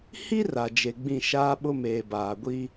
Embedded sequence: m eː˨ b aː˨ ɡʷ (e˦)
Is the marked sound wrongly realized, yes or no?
yes